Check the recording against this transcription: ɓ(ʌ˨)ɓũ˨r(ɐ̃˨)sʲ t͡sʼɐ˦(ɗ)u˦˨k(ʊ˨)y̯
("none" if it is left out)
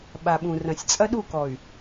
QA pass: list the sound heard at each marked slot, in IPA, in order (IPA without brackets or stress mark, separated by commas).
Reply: a˨, ɐ̃˨, ɗ, ɔ˨